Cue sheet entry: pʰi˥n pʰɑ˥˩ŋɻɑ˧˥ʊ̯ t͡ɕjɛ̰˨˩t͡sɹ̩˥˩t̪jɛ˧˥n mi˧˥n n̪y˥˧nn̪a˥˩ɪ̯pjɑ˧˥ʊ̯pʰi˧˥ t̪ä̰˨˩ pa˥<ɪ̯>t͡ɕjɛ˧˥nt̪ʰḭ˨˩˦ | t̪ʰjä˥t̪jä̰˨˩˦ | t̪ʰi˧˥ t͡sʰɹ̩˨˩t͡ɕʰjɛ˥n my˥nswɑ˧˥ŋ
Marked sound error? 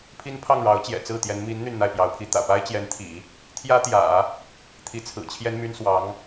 no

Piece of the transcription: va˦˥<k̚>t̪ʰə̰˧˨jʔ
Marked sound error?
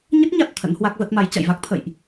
no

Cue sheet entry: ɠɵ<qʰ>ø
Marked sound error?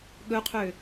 no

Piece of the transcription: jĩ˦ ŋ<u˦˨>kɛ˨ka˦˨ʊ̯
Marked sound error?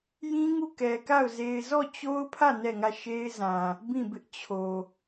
no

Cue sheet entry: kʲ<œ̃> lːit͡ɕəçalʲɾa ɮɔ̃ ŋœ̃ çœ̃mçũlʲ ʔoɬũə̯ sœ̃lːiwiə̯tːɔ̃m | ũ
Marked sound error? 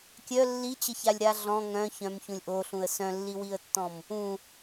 yes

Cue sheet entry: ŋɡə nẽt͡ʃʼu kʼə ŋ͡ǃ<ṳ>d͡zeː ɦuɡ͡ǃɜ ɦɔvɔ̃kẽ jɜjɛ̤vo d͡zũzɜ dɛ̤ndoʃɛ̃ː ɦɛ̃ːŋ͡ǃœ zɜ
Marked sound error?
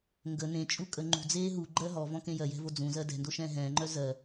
no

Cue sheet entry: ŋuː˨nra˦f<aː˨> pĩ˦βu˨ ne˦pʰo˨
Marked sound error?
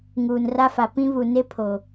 yes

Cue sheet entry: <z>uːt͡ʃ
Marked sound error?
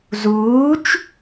no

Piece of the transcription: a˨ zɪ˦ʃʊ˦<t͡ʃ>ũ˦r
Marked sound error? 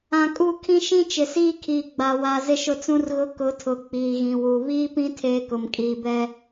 yes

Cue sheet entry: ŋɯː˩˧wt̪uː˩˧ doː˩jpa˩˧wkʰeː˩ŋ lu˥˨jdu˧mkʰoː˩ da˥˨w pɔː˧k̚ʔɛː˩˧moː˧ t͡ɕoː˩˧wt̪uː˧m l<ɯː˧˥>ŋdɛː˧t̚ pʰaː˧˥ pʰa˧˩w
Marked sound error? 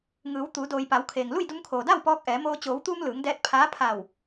yes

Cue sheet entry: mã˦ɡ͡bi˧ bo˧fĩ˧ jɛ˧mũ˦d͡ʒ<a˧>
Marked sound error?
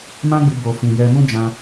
yes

